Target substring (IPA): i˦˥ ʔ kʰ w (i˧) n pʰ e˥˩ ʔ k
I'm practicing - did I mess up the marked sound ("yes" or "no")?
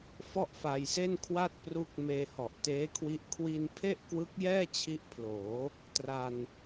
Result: no